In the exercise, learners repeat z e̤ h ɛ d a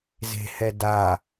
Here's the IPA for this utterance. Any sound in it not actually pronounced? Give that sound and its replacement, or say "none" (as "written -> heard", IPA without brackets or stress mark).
none